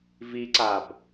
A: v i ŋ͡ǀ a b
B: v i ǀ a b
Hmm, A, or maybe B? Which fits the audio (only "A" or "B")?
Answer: B